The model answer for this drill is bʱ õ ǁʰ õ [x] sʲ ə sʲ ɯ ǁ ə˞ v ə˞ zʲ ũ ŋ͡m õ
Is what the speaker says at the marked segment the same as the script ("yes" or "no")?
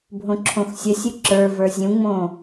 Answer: yes